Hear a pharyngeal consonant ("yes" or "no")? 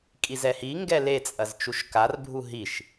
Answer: no